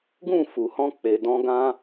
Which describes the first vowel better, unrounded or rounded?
rounded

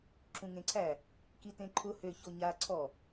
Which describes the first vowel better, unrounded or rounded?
rounded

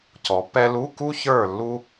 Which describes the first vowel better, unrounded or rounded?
rounded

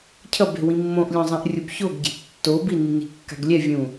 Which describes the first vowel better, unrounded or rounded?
unrounded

